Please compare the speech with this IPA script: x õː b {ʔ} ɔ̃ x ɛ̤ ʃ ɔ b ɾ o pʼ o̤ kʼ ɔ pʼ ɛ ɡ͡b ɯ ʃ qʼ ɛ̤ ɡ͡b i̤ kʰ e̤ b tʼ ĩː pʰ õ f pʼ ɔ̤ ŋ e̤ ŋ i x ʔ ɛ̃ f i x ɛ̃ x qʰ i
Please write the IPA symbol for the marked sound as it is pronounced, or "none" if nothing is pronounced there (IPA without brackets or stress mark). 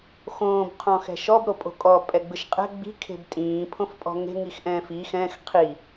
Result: qʰ